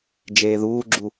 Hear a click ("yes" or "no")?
yes